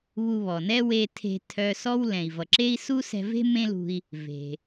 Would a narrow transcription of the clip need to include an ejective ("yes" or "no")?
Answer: no